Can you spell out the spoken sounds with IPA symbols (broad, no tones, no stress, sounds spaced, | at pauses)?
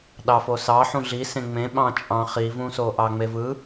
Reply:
ɗ ɑ f o s ɑ ħ ũ ɮ i s ẽ ŋ͡m ẽ ɓ ɑ̃ t͡ʃʼ ɑ̃ χ i v ũ s o ʔ ɑ ŋ͡m e v ɯ